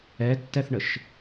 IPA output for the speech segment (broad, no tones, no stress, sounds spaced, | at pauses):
ɛ tː ɛ θ ɳ ə ʃ